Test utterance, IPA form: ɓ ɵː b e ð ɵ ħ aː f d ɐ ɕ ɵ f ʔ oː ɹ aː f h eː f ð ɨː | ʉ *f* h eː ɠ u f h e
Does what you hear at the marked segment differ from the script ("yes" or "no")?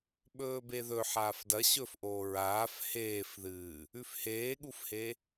no